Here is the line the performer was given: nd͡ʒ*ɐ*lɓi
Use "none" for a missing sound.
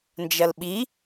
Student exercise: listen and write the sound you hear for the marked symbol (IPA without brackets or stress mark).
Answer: ɐ